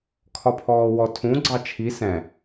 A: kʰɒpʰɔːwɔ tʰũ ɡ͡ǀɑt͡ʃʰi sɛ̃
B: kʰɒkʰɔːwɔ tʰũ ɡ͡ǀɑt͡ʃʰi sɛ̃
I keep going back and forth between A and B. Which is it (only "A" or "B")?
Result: A